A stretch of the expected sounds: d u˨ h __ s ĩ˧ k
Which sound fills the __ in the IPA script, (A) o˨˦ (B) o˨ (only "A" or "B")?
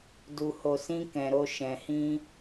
B